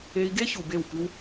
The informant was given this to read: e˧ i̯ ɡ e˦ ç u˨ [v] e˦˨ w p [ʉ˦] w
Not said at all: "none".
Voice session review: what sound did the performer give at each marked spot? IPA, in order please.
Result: b, ʉ˦

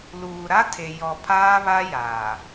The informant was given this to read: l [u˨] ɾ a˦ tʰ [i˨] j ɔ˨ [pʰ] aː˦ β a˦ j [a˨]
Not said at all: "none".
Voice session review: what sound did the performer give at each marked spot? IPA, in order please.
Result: uː˨, e˨, pʰ, aː˨

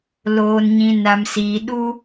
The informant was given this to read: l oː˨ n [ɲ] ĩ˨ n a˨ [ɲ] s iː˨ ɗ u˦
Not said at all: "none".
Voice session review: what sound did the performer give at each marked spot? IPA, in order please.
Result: ɲ, m

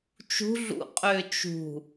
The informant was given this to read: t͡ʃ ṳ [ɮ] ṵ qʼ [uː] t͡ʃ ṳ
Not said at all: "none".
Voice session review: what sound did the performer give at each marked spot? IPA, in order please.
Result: ɮ, ʏː

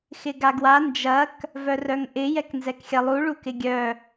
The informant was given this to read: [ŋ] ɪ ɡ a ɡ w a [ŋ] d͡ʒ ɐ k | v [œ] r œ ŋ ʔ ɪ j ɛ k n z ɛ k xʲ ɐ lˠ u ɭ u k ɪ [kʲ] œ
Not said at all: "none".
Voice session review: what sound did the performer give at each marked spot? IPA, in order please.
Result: x, n, œ, ɡʲ

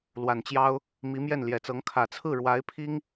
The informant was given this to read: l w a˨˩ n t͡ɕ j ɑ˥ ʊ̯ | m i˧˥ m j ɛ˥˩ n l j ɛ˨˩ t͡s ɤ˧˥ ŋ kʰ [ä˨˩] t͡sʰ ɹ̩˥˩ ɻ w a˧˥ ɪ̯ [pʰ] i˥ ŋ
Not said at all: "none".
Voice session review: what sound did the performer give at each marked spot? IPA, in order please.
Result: ä˨˩, pʰ

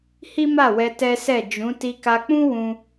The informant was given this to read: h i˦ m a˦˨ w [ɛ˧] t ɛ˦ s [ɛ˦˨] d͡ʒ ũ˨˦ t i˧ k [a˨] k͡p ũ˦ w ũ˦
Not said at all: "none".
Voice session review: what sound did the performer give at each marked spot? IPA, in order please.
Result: ɛ˧, ɛ˦˨, a˧

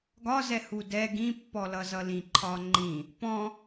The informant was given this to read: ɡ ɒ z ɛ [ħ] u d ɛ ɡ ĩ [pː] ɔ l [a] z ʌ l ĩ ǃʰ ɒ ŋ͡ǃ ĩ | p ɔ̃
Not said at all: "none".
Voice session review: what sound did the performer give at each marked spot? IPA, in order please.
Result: h, pː, ʌ

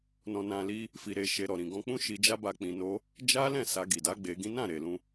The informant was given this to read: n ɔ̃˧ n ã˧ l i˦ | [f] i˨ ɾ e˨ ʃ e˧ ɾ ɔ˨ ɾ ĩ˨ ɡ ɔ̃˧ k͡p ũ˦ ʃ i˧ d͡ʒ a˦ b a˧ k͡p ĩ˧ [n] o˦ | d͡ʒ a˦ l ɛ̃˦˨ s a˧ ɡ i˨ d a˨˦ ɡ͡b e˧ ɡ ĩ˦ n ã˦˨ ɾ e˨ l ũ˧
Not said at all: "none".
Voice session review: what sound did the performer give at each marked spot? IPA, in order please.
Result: f, n

